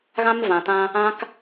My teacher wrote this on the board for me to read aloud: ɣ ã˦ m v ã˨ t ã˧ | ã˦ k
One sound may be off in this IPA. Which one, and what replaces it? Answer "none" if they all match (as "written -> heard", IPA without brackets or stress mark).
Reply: none